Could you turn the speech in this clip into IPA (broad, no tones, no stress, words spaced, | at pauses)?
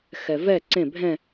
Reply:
xɛvɛ ǀẽ bʱɛ̃